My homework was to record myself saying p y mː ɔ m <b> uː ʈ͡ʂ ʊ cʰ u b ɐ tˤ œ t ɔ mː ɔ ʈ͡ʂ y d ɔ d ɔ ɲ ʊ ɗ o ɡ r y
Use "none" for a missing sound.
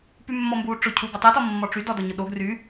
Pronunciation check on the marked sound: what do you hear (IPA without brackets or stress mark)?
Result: b